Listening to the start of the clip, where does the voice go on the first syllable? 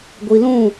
low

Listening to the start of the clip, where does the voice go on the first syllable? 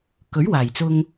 rising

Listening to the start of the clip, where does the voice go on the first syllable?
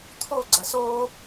falling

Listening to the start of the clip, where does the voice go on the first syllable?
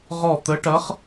falling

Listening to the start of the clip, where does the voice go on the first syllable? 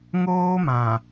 high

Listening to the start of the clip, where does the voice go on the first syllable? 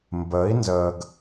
rising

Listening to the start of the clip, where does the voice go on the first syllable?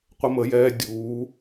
high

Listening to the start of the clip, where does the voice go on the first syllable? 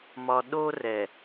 low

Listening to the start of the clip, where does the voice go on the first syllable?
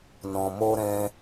low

